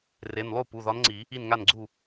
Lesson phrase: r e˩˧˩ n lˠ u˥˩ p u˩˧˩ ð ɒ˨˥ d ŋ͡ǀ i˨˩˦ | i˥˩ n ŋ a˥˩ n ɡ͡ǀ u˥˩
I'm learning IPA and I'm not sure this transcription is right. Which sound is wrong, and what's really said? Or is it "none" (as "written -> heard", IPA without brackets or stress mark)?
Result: d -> n